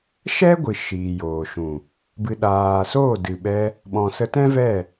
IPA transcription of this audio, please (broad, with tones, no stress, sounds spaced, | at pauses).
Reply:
ʃ ɛ˦ ɡʷ ɨ˨ ʃ iː˨ j oː˨ ʃ ũ˨ | b ɨ˨ ɗ aː˨ s oː˦˨ d ɨ˨ ɓ ɛ˧ | ɓ ɔ̃˨ s ə˧ t ɛ̃˦ v ɛ˦˨